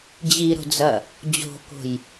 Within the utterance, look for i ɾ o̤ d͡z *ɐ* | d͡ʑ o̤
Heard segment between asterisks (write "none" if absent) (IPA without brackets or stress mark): ɐ